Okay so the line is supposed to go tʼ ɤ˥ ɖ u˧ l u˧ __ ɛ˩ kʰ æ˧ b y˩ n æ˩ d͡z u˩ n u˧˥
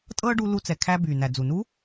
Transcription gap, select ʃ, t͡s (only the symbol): t͡s